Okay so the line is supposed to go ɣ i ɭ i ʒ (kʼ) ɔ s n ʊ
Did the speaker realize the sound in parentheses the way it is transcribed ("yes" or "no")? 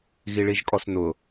yes